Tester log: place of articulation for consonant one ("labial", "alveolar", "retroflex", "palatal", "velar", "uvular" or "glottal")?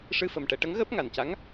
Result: retroflex